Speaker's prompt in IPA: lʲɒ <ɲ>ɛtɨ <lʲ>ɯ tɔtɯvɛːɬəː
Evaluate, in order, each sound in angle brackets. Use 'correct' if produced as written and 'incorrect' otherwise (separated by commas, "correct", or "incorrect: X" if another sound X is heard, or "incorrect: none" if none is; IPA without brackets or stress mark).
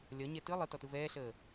correct, incorrect: lˠ